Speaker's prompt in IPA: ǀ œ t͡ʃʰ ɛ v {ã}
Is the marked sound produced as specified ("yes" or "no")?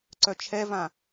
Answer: yes